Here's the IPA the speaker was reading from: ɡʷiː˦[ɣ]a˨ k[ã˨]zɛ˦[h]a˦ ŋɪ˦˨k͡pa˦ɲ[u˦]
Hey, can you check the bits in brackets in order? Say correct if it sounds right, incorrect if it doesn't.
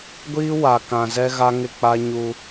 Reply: incorrect, correct, incorrect, correct

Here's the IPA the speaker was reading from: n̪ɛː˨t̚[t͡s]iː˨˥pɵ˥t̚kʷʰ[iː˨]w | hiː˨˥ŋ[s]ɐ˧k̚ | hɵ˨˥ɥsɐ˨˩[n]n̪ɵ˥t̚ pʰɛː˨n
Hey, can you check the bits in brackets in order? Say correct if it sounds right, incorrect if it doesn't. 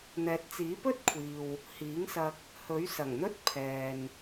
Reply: correct, correct, correct, incorrect

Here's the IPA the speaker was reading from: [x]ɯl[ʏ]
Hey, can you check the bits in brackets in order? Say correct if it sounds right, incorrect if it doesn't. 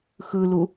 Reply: correct, incorrect

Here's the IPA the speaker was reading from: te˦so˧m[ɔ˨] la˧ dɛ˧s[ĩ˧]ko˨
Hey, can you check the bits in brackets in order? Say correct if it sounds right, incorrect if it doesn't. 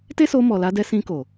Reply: correct, correct

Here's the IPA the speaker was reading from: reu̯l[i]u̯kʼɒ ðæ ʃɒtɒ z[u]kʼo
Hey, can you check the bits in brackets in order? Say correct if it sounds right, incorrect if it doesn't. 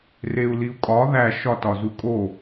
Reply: correct, correct

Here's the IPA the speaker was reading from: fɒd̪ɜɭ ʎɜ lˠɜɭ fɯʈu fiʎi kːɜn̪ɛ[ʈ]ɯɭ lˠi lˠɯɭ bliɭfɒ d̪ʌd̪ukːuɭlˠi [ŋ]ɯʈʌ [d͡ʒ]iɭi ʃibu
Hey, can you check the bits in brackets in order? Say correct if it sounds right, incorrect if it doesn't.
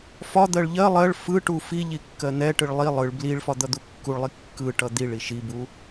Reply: correct, incorrect, incorrect

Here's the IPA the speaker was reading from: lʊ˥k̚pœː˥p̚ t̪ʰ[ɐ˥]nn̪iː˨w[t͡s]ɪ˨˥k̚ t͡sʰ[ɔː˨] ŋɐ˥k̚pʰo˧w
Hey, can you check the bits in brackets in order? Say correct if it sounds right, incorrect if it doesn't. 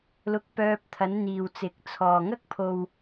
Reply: incorrect, correct, correct

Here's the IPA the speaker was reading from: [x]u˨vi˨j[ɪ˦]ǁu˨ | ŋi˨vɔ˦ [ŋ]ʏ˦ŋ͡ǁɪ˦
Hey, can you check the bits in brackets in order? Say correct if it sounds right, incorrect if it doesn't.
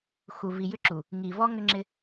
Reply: correct, incorrect, correct

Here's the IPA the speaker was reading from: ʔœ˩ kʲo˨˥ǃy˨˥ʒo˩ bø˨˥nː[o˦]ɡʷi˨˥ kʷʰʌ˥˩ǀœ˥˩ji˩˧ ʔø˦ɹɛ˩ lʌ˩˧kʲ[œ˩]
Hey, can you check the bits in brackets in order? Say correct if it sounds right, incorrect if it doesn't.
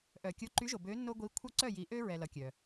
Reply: correct, correct

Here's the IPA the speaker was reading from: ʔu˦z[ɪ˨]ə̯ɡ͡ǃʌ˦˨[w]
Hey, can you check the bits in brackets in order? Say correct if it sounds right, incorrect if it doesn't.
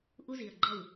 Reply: incorrect, correct

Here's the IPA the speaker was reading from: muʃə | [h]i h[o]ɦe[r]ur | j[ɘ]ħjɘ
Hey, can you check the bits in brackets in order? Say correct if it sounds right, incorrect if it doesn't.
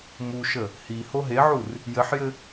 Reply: correct, correct, incorrect, correct

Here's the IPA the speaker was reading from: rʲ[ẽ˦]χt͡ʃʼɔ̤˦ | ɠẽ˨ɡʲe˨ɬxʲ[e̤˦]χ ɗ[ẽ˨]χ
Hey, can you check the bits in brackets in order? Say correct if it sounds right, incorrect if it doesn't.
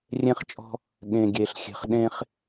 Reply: correct, incorrect, incorrect

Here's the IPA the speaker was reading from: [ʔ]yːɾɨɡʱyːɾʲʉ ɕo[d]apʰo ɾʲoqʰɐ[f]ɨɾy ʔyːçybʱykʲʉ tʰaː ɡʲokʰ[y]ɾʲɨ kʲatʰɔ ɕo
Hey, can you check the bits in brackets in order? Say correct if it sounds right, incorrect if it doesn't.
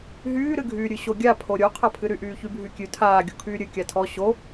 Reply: incorrect, incorrect, incorrect, incorrect

